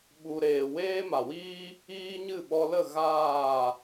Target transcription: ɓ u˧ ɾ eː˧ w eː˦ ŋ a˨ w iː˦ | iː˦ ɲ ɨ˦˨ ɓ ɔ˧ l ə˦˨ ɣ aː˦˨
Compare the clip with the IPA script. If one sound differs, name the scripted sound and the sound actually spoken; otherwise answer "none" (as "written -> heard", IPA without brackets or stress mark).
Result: ŋ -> m